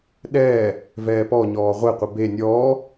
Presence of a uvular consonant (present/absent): present